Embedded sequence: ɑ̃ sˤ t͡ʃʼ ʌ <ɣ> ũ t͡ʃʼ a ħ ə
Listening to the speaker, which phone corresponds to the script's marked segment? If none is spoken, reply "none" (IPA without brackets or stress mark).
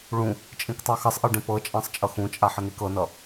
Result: x